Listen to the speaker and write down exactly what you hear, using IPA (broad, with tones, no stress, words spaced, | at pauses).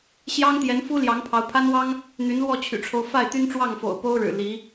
ɕjɑ˥ŋ t̪jɛ˧˥nfu˥ ljɑ˧˥ŋpʰɑ˧˥ʊ̯pʰa˥nwɑ˥ŋ | n̪y˧˥nlwɔ˥˩t͡ɕʰy̰˨˩ʈ͡ʂʰo˦ʊ̯ fa˥˩ɪ̯t̪y˥nʈ͡ʂwɑ˥˩ŋfo̰˨˩ʊ̯ po˥ʊ̯ɻɻ̩˨˩ li˧˥